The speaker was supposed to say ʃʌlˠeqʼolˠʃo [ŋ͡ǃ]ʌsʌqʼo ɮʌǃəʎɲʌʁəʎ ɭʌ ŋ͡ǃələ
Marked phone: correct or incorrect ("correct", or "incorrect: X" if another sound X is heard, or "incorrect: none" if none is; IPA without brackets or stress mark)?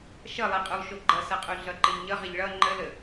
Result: incorrect: ɡ͡ǃ